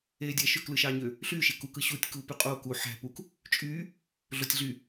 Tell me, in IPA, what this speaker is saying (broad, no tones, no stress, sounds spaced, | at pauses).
eː dʲ æ ʃ ø k l ɯ ʃ ɑː ɲ ø | ɬ yː ʃ e k u k ɯ ɕ uː tʲ k uː p y qʼ oː k u ħ æ̤ p u k | t͡ʃʼ yː | ɮ o tʲ ɮ y